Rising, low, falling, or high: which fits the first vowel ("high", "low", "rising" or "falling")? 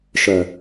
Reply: low